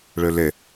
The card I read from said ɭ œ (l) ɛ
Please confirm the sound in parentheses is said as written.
yes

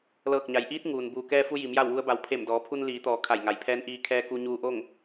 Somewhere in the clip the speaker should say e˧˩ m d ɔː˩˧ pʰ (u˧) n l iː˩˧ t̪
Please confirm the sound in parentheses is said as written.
yes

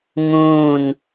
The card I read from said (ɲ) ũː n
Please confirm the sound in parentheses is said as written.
no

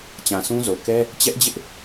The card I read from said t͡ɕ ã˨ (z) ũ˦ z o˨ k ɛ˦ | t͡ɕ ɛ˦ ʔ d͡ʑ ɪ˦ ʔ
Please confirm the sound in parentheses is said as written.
no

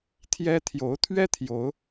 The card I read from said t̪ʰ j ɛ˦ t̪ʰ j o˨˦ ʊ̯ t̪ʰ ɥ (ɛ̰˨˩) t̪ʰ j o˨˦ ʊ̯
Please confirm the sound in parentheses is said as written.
no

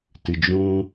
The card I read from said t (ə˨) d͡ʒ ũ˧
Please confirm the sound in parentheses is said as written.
no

